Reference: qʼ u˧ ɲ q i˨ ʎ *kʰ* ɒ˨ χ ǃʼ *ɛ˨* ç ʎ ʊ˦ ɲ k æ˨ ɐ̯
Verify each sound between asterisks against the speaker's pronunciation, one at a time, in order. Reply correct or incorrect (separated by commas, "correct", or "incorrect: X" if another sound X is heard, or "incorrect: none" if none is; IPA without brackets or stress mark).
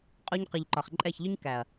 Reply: incorrect: ǃ, incorrect: ɛ˦˨